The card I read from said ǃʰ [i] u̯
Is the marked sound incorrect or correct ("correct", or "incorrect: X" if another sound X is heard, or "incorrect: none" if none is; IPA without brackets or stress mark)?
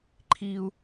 correct